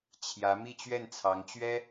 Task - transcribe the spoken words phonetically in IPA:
t͡ɕʰ j ä˧˥ m i˥˧ t͡ɕ ɥ ɛ˥˩ n t͡sʰ ɑ˧˥ ŋ t͡ɕ ɥ ɛ˥

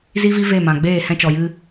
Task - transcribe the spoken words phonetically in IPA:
z i˦ v i˦ v e˦˨ m ã˨ ɡ͡b eː˦˨ h ɛ̃˧ t͡ʃ ɔ˨ j ɨ˧

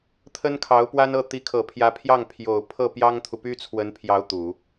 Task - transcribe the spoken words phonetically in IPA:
t̪ʰ ə˥ n kʰ ɑ˧˥ ʊ̯ p w a˥ n ɤ˥˩ t̪ i˧˥ kʰ ɤ˨˩ pʰ j ä˧˥ pʰ j ɑ˥˩ ŋ pʰ j o˨˩ ʊ̯ pʰ ɤ˥˩ p j ɑ˥ ŋ t̪ʰ u˨ p y˥ t͡sʰ w ə˧˥ n pʰ j ɑ˧˥ ʊ̯ t̪ u˨˩˦

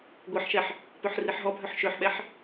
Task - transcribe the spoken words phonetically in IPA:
ɡʷ i ħ ʃ ɛ ħ | p ø ħ r i ħ ɦ ɔ bʱ œ ħ ʃ ø ħ ɓ ɛ ħ

